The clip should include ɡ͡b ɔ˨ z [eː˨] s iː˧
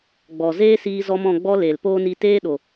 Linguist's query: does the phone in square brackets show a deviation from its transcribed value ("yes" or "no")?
yes